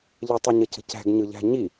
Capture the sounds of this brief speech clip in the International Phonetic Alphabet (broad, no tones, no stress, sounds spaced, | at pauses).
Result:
ʎ ə tˤ ø ɲ ə c ə̤ c æ̤ ɡ ɲ ɯ ʎ æ̤ ɲ i